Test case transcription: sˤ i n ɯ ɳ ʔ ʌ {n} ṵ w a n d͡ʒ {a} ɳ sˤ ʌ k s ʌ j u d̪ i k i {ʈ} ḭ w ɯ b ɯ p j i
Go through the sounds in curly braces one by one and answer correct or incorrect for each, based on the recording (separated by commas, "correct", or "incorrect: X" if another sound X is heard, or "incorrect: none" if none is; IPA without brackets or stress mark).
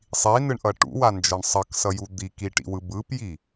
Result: incorrect: ʈ, incorrect: ʌ, correct